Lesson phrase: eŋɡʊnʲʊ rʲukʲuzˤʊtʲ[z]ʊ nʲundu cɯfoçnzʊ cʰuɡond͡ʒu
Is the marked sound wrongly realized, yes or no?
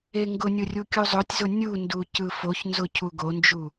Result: no